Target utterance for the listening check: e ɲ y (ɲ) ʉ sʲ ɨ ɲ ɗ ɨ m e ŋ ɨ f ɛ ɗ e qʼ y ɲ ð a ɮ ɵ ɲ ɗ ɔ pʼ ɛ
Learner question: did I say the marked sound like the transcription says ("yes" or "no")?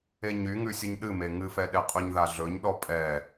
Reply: no